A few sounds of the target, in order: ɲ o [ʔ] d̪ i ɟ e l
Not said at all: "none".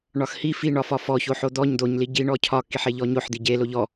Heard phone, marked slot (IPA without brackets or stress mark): ħ